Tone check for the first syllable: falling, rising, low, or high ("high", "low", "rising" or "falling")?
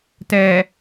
low